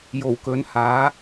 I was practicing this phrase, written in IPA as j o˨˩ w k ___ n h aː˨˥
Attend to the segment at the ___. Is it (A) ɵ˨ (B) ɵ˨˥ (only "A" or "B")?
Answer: B